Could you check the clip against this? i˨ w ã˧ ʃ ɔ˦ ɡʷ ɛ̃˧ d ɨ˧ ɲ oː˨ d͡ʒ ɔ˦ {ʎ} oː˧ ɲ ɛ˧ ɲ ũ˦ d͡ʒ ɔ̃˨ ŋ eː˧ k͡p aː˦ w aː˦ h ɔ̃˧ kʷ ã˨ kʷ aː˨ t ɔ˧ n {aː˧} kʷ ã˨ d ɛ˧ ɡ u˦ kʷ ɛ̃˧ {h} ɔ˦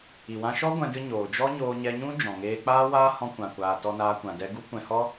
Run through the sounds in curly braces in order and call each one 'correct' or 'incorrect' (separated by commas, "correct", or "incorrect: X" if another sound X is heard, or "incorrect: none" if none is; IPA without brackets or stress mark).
incorrect: ɲ, correct, correct